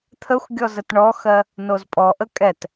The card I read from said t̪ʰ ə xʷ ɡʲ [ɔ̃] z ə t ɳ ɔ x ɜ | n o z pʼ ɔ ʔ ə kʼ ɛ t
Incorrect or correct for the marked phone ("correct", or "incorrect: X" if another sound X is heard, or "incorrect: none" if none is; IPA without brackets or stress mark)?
incorrect: ɔ